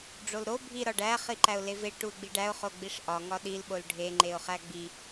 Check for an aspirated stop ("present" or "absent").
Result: absent